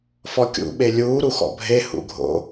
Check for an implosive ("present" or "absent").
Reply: present